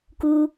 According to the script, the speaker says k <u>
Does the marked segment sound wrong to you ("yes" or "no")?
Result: no